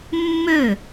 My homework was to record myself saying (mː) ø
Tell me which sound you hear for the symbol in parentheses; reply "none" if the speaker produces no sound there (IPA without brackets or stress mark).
mː